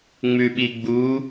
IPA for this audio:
ŋ͡m ʉ ɓ i ɡ͡b u

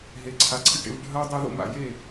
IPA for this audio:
ɦ e˨ ǀʰ a˨ ǀʰ ɨ˦ ʈ ḛ˦ v ɖʱ ɐː˦ dˤ e˦ ð o̰˦ m a̰˨ j e˦˨

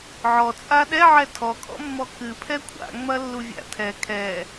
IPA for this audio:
ʕ ɔ t͡sʼ a ɗ ɛ ʕ ɛ tʰ ɔ kʼ ɔ̰ mː ɔ k ɨ pʰ ɛ kʷʰ a̰ ŋ͡m ɐ lː u vʲ a̰ tʰ ɛ kʰ ɛ

